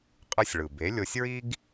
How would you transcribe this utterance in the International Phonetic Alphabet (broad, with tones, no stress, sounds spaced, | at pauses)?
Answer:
qʼ ɯ˧ sʲ ɭ ɯ˩ b e˩˥ lʲ o˧ sʲ ɹ i˥ ɡ